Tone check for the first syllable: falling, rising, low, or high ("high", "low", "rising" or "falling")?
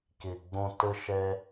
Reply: low